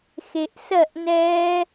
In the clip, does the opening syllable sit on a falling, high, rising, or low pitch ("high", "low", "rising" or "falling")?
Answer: low